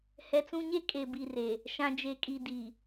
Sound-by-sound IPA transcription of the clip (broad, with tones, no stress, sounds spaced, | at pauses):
h ɛ˨ t͡s ũ˦ ɲ e˦ kʼ e˨ b i˨ r e˨ | ʃ ã˨ d͡ʒ e˨ kʼ i˨ d i˨